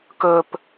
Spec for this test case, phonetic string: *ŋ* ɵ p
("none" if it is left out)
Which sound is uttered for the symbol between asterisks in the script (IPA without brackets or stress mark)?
k